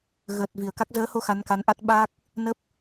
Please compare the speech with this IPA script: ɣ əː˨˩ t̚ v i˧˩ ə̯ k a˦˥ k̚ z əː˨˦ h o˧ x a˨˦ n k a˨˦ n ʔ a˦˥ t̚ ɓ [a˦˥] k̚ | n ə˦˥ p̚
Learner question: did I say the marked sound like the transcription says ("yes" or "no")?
no